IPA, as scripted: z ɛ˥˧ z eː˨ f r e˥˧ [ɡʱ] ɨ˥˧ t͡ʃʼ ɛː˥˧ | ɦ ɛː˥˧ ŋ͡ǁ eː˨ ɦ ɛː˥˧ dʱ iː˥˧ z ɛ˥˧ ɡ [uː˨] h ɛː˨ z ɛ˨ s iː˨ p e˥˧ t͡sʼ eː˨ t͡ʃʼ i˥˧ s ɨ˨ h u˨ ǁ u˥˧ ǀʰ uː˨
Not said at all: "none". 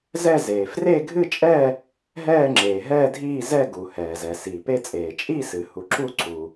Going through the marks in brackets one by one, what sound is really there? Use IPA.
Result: ɡʱ, u˨

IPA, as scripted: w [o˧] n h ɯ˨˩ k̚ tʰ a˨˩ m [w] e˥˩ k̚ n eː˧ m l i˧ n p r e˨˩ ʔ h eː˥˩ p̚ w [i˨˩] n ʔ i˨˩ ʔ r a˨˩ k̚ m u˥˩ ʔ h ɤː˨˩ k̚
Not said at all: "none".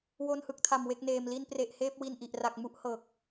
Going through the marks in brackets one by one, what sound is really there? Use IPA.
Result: o˧, w, i˧

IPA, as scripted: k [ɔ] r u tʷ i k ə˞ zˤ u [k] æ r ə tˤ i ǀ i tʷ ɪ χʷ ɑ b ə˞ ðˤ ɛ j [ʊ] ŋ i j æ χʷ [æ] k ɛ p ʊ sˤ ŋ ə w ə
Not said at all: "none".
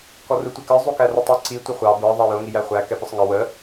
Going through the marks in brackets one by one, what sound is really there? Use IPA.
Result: ɔ, k, ʊ, æ

